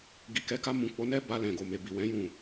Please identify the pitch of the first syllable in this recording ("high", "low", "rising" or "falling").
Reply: low